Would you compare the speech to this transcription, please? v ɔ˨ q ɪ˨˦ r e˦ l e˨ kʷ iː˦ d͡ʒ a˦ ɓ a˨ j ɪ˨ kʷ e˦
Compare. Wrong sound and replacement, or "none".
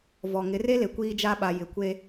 q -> ŋ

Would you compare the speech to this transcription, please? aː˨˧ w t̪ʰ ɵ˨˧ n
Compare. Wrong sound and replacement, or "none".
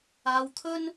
ɵ˨˧ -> ɵ˥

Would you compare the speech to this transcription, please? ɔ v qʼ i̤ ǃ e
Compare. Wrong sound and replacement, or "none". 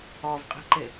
none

